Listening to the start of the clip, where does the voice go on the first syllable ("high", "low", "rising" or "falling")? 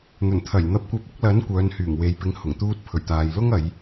low